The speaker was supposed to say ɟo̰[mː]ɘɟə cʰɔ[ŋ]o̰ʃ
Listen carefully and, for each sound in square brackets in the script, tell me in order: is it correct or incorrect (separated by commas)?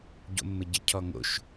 correct, correct